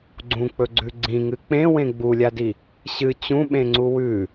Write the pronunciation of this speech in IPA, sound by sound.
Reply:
ɡ͡ǀ ũ k͡p ɵ ɡ͡ǀ ʉ ɡ͡ǀ ĩ ŋ ɨ k͡p ẽ w ẽ ɡ͡b u lʲ a d i | ɕ ɨ t͡ɕ ũ ɓ ẽ ŋ͡ǀ u w ʉ

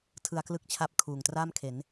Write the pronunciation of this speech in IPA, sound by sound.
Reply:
tʰ ɯ˧ a̯ k l ɯ˦˥ k̚ t͡ɕʰ a˦˥ p̚ kʰ uː˨˩ ŋ t r aː˥˩ m kʰ e˩˦ n

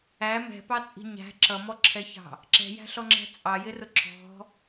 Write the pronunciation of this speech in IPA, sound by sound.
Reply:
æ m ɛ̤ p ɑ t͡sʼ i̤ ɲ æ̤ ǁ ʌ m ɔ ǁʰ ɛ ç ɑ̤ | ǁ ɛ̤ j æ̤ ɬ ɔ ŋ͡ǁ æ̤ t͡sʼ ɑ j ɪ r ʊ ǁ ɔ̤

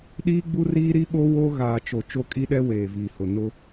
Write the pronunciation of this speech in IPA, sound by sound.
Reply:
ɗ iː˦ ɡ͡b u˦ r iː˦ ɾ i˦ ɓ o˦ w o˦ ɣ aː˨ t͡ʃ o˨ t͡ʃ o˦˨ kʼ i˦ ɗ ɛ˦ w eː˨ v iː˨ h ʊ˨ n ʊ˦

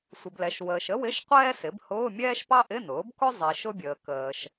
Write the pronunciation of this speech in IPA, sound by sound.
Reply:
sʷ ɪ˨ b l ɛ˨ ʃ w əː˨ ʃ ə˥ w ɪ˧˥˧ ʃ qʷ ɛː˥ s ɪ˩˥ b h ʊː˧˥˧ mʲ ɛː˥ ʃ p ɑ˥ ʔ ɪ˧˥˧ n ʊː˩˥ b k ʊ˥ zˤ i˨ ʃ ʊ˥ bʲ əː˨ k əː˨ ʃ

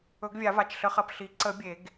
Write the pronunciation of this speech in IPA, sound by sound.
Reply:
ɵ˨˩˦ ɡ vʲ a˨˩˦ v a˩˧˩ t͡ʃ ɬ ə˨˩˦ χ ɐ˩˧˩ p ɬ i˨˩˦ ǀ ə˨˩˦ bʲ e˨˩˦ ɡ

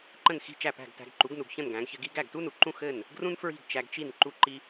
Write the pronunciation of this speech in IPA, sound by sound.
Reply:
ǃ ə̃˥˩ n x i̤˥˩ t͡ʃ æ˥˩ p æ̤˥˩ ɡ t æ̤˧ ɡ ǃ u˩˥ ɡ n u˩ ɡ ç ə̃˥˩ n ɡ æ̃˩˥ ɡ ç ɘ˧ ɡ i˥ ɡ æ˥˩ ɡ t u˥ n u˩ ǃ ũ˥˩ x ɘ˥˩ n | ɡ r ũ˥ n f ɹ i̤˥˩ ɡ t͡ʃ æ˧ ɡ t͡ʃ i˥˩ n ǃ u˧ ǃ i˧

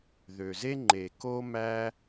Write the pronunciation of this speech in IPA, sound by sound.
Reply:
ð ø˩ z e˥ ŋ͡ǃ e˩ k o˧ m æ˧

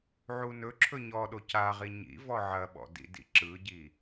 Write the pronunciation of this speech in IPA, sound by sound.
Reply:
ʕ u n ɵ ǁʰ ɵ ɲ ɔ ɗ o c a ʁ i ɲ ḭ v ɔ ʕ ɐ ɓ ɔ̰ d ḭ d ḭ ǁ ɯ ɟ i

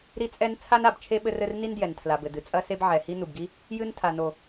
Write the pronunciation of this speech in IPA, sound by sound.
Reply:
ɾ i˥ t͡sʼ ɛ˥ n t͡sʰ a˥ n a˩ b t͡ʃʰ e˥ ɓ ɘ˥ r ɘ˥ r n i˥ n d j ɛ˩ n tʰ l a˩ b ɘ˩ d ɨ˩ t͡sʼ ɐ˥ s e˥ b ʕ ɛ˩ h i˥ n u˩ b ɡ i˥ | j ɨ˥ n tʰ a˩ n o˩

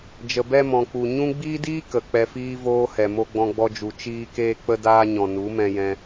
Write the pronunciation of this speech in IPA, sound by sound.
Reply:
d͡ʒ ə˨ b ɛ˧ m ɔ̃˨ k͡p u˨ ɲ ũ˦ ɡ͡b iː˦ d iː˦ k ə˨ k͡p ɛ˧ f iː˦ v oː˧ h ɛ˨ m o˧ ɡ͡b ɔ̃˧ ɡ͡b ɔ˧ d͡ʒ u˨ t͡ʃ iː˧ k eː˧ k͡p ə˧ d aː˧ ɲ ɔ̃˨ n u˨˦ m ɛ̃˧ j ɛ̃˧

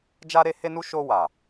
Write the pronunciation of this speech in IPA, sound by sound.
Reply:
d͡ʒ a˧ ɾ e˧ h e˧ n u˧ ʃ o˧ w a˨

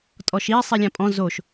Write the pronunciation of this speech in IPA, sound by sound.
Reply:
tʼ ɔ ʃ i sˤ i lʲ ã pʼ ɔ̃ z o ʃ

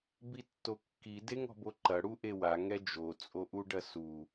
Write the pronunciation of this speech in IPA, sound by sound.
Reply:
b i tː o kː i d e ŋ ɔ̤ b o ǃ ɐ ɽ u ʔ e w a ŋ ɛ d͡ʒ o t͡sʼ o ʔ u ɖ ɐ s u

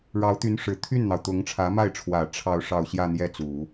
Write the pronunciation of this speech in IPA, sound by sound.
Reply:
ɻ ɑ˧˥ ʊ̯ t̪ y˧˥ n ʂ ɻ̩˨˩ t̪ʰ y˥˩ n n̪ ɑ˩ ʊ̯ t̪ ʊ˧˥ ŋ ʈ͡ʂʰ ä˧˥ m a˥˩ ɪ̯ ʈ͡ʂʰ w ä˨˩ ʈ͡ʂʰ ɑ˥˧ ʊ̯ ʂ ɑ˥˧ ʊ̯ ɕ j ä˥˧ n̪ j ɛ˥˩ t͡s u˨˩˦

